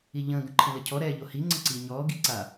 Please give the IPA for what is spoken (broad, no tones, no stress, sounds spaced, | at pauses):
i ʎ ə̃ː ɡ ə̃ ǃʰ ə̃ l ə cʰ ɔ ɾ ɛː ʎ o h i ŋ͡ǀ ə̃ ǀ iː ɲ ɔː ɡ i ǀ a